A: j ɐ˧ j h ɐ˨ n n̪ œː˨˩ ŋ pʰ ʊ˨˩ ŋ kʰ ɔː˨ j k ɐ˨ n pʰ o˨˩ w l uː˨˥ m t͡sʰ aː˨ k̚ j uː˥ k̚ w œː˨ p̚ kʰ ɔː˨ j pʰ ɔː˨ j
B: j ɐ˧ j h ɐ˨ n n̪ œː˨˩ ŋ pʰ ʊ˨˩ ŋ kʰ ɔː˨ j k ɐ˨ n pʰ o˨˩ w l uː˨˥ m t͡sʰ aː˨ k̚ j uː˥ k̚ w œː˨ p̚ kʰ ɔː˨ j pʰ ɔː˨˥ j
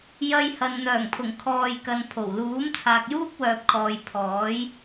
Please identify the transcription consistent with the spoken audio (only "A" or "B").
B